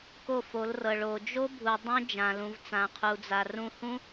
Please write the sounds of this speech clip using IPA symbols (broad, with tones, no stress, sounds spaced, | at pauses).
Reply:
k o˦˨ f o˨˦ l r ɤ˨ ɭ o˨ d͡ʒ o˦ bʱ u˨ dˤ õ˦ d͡ʒ ã˨ l ũ˨ v t͡s ã˨ qʰ u˨ d͡z a˨ r ũ˧ h ũ˧